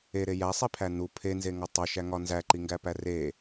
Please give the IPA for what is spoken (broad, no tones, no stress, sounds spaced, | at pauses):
e ɾ e j æ sˤ i pʰ æ n u pʰ e n z e ŋ ɒ tˤ o ʃ æ ŋ ɒ n z æ ǃ i ŋ ɡ æ p æ r e